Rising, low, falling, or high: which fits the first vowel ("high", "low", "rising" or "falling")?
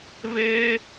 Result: high